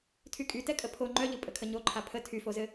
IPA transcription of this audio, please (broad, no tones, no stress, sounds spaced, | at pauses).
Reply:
tʰ y kʼ y t ɛ kʼ ə pʰ o ŋ͡ǃ œ ʎ ɯ pʼ ə kʰ ə ɲ o ǃʰ a pʰ ə tʰ y f o z ɘ